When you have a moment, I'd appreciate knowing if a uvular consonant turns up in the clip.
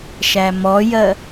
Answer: no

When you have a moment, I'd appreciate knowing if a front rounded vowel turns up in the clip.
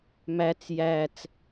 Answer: no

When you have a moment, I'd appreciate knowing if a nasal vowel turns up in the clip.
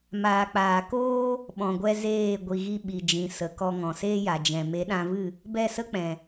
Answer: yes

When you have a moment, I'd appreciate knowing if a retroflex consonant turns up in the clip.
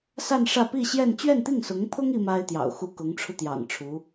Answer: yes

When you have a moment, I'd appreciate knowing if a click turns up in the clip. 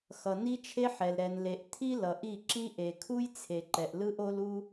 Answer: yes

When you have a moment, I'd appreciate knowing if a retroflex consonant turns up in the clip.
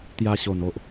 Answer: no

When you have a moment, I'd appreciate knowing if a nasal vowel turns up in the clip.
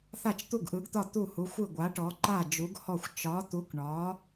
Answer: no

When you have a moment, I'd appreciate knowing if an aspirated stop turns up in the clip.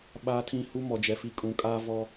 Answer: yes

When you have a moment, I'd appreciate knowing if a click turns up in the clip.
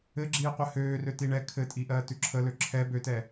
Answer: yes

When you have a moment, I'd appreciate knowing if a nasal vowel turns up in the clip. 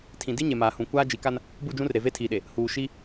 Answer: yes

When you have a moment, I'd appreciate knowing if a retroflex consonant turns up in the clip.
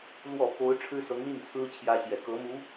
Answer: yes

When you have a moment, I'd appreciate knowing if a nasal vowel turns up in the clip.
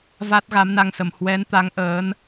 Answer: no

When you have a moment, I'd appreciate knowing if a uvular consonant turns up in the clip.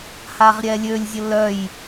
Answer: yes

